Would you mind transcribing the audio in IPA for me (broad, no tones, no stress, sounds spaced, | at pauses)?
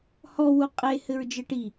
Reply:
h ɔ w u qʼ e h ɘ ɹ d͡ʒ ɘ ʈ i